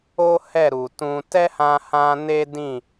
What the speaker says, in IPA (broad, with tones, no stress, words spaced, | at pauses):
o˦ hɛ˦˨ ɾu˨tũ˧ tɛ˦hã˧hã˧ ne˦dĩ˦˨